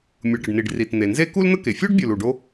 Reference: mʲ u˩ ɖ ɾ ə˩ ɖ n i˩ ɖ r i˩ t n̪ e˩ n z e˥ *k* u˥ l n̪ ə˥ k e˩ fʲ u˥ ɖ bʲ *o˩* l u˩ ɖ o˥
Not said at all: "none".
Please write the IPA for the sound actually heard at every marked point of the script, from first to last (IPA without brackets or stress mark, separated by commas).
k, u˩